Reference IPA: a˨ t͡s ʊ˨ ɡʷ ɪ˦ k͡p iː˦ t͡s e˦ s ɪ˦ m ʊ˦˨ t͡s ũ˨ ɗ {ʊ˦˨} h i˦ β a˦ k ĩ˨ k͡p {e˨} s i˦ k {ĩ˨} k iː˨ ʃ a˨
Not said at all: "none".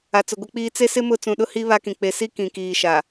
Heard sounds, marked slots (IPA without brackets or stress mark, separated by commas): ʊ˦, e˨, ĩ˨